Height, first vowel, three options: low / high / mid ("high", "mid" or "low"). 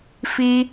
high